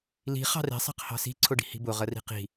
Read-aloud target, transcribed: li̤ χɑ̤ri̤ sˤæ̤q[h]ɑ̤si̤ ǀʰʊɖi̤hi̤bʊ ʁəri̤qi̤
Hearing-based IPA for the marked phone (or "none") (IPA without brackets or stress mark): h